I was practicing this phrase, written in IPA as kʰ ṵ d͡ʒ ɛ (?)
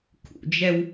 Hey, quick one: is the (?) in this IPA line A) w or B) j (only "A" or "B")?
A